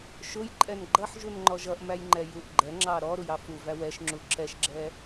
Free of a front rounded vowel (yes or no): yes